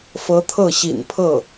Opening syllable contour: rising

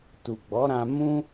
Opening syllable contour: low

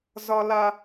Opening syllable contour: high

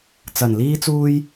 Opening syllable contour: low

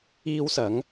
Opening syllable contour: high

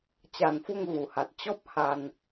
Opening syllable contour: low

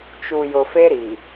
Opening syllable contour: low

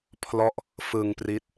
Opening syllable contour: falling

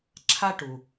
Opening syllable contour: high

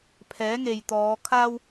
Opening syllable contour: rising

